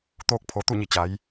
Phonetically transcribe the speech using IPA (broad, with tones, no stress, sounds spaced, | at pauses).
t̪ oː˧ k̚ pʰ o˩˧ t̪ u˥˨ ɲ i˧˩ t͡ɕ a˩˧ j